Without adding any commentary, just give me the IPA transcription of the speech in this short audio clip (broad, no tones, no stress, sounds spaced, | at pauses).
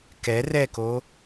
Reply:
k ɛ r ɛ k o